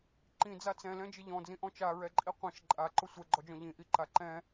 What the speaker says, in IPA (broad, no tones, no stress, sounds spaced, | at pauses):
ǃ ĩ d͡z a t͡s ɛ̃ l ɛ̃ d͡ʒ ɪ ʎ ɔ̃ d͡z ĩ ʔ ɔ̃ t͡ʃ a ɹ ɛ ǃʼ i qʷ ĩ ʃ ǃʼ a ǃ ʊ sʷ ɛ ɡ͡ǃ ɔ d͡ʒ ɔ̃ ʎ ĩ ʔ i ǃ a ǃ ɛ̃